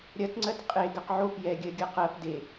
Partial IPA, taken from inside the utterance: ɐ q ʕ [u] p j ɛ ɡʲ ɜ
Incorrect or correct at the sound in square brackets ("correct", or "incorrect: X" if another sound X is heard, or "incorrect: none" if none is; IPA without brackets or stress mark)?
incorrect: o